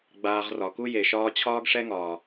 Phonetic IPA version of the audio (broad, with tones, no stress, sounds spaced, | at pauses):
ɡ͡b aː˧ ʁ r ɒ˨ k u˦ j e˨ ʃ ɒː˦ t͡ɕʰ ɒː˦ ɡ ʂ ɛ˦ ŋ ɒː˨